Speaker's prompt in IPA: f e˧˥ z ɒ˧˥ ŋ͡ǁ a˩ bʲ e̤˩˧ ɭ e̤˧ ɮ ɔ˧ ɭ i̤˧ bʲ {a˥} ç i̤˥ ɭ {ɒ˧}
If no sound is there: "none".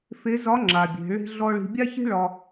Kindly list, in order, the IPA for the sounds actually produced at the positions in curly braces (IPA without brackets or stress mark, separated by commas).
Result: a˥, ɒ˧